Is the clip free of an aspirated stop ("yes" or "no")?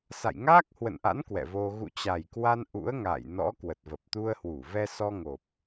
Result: yes